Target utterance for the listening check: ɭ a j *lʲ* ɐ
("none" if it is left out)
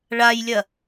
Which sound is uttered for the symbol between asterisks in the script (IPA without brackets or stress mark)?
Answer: lʲ